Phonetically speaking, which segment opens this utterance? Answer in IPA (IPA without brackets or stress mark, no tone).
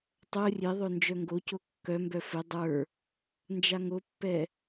tˤ